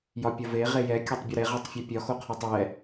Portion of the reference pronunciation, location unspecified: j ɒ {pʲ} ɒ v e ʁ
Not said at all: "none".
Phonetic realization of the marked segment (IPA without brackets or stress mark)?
pʲ